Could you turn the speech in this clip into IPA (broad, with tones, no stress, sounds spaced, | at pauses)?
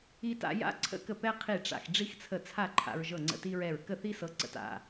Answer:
i˧ t a̰˧ j a̰˧ ǀʰ ə̰˥ k ə˥˨ p ɛ˥ qʰ i˥˨ ʈ͡ʂ a̰˧ x ɖ͡ʐ i˥ x t͡sʰ ə˥˨ t͡sʰ a˥˨ ǃʰ a̰˧ ɹ ʒ ɤ˥˨ ŋ͡ǀ ə̰˥˨ t i˥ ɹ ɛ˥˨ ɹ k ə˥˨ θ i˥ s ɤ˧ ǀ ə̰˧ t a̰˥˨